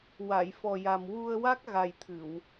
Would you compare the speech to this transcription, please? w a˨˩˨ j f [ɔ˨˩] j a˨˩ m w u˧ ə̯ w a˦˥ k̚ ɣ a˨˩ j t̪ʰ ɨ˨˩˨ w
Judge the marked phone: correct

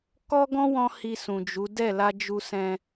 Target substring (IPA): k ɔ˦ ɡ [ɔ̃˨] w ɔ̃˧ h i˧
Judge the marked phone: incorrect: ɔ̃˦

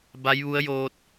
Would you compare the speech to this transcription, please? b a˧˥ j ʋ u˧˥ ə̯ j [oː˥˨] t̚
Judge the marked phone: incorrect: oː˧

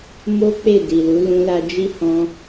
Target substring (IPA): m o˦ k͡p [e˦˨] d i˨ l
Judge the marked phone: correct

